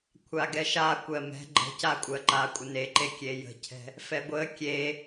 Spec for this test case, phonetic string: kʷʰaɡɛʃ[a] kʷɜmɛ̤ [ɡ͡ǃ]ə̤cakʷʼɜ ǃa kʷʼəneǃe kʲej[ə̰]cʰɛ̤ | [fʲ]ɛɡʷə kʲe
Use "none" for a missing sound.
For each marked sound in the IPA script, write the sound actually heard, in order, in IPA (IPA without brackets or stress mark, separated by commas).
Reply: a, ɡ͡ǃ, ə̤, f